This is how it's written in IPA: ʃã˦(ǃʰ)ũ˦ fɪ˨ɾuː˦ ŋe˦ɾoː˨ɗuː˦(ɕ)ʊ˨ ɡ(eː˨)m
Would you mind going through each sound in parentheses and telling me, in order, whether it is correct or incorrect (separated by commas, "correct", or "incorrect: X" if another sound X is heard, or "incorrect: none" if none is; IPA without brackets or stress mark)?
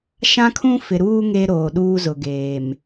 incorrect: kʰ, incorrect: z, correct